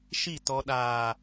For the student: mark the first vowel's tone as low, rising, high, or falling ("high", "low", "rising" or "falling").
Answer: falling